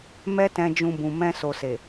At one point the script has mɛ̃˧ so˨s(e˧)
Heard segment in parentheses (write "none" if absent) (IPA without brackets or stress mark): e˨